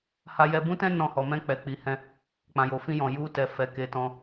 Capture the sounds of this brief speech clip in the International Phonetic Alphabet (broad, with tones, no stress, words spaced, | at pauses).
ha˦jɛ˦ bũ˦tɛ̃˦ nɔ̃˧hɔ˨ mɛ̃˧k͡pɛ˨k͡pi˨ hɛ̃˧ | k͡pã˨jo˨fĩ˧ jɔ̃˨ ju˧tɛ˨ fɛ˧ke˧tɔ̃˧